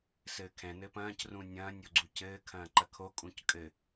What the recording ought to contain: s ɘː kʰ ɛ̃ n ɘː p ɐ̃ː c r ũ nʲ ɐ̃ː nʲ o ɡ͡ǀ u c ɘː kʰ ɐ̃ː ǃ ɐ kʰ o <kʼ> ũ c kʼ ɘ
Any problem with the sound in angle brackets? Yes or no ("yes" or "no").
no